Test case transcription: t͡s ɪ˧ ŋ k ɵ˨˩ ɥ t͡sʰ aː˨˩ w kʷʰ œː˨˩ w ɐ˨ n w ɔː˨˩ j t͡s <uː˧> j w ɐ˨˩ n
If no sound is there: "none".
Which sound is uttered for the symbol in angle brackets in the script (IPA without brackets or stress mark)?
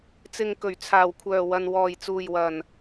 uː˨˩